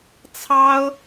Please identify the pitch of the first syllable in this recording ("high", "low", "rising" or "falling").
high